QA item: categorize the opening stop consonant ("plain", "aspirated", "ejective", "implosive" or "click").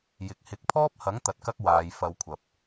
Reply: plain